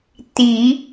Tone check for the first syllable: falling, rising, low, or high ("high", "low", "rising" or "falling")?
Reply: low